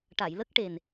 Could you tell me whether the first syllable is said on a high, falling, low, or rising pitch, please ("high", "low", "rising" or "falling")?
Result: low